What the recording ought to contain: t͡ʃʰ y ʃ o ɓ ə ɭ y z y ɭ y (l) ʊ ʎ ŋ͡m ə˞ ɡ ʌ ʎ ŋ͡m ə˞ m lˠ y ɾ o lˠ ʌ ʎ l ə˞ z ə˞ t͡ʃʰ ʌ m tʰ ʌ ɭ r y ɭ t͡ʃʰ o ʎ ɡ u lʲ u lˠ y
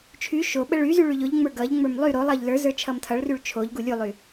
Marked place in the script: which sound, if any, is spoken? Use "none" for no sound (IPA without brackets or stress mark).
ʎ